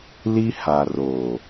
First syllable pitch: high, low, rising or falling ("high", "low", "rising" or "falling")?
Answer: high